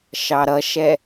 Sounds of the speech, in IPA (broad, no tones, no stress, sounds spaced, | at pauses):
ʃ ɑ ɾ ʌ ʃ ɛ